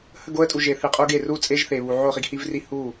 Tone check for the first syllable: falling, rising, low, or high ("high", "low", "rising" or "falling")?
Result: falling